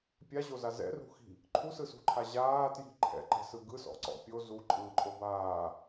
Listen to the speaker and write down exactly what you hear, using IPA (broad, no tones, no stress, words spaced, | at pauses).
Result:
pʲaʑoza zɛ̰rṳxi̤ | ǃʰusɯsṳǃʰa ʑaːtji̤ ǃʰɛ̰ǃɛ̤sɯ ɡɯsɔ̰ǀɔ̰ pʲo zuǃʼɯːǃʼo baː